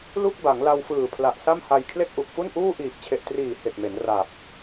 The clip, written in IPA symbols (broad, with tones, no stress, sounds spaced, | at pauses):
l u˥˩ k̚ b a˩˦ ŋ l a˧ w f ɯː˨˩ pʰ l a˨˩ ʔ s a˥˩ m h a˧ j kʰ l e˥˩ k̚ ʔ u˨˩ k̚ f u˥˩ n ʔ uː˥˩ ʔ iː˨˩ k̚ t͡ɕʰ e˨˩ ʔ t r iː˨˩ h e˨˩ k̚ m e˩˦ n r a˨˩ p̚